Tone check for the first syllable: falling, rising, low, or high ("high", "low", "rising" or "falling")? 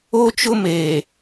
high